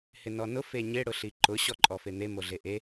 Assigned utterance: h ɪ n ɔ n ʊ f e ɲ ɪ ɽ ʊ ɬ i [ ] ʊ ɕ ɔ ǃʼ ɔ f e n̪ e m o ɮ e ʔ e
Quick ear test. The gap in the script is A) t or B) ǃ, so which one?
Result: B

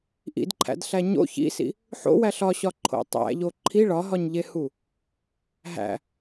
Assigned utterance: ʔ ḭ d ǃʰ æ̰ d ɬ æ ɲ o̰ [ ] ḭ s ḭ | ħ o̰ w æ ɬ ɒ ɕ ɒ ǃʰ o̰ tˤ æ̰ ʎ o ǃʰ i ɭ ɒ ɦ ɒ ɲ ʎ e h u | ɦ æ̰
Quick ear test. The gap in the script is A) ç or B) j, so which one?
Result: A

